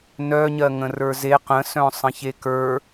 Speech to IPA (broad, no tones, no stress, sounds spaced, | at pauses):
n œ ɲ ɜ ŋ ə̃ r ə˞ z e q ə̃ s œ̃ sˤ ə̃ ç e k ə˞